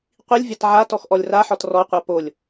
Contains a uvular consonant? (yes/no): yes